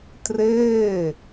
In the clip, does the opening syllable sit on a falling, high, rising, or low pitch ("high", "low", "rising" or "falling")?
falling